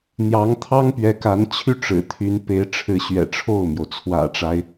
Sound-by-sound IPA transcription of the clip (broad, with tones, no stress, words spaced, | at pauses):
n̪jɑ˧˥ŋt̪ʰɑ˥ŋpɥɛ˧˥ka˧˥n t͡ɕʰy˥˩ʈ͡ʂɻ̩˨˩t̪ʰy˧˥n pe˧˥ɪ̯ʈ͡ʂʰɻ̩˧˥ɕɥɛ̰˨˩ ʈ͡ʂʰo˥˩ʊ̯mjo˩ʊ̯ t͡sʰwä̰˨˩ʈ͡ʂa˦ɪ̯